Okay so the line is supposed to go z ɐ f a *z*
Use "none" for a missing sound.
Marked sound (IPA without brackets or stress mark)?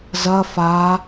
none